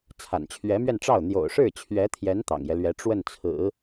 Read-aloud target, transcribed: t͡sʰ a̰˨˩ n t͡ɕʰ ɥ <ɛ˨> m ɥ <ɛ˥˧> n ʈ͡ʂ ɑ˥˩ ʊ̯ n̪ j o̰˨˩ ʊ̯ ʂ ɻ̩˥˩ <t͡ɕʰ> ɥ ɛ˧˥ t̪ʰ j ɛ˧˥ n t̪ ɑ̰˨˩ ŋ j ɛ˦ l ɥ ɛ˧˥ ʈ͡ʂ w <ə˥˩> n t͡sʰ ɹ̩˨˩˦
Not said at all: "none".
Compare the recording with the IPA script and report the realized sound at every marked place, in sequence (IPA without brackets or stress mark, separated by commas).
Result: ɛ˧˥, ɛ˥˧, t͡ɕʰ, ə˥˩